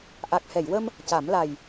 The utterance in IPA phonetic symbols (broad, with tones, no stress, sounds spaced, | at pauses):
ʔ a˨˩ k̚ h ɛ˨˩˨ j w ə˧ m | c a˨˩˦ m l a˨˩ j